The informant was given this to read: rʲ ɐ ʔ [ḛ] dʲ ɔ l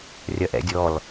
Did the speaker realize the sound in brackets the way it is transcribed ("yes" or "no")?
no